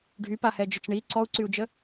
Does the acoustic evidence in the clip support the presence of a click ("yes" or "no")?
yes